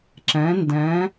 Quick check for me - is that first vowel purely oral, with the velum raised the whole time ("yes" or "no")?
no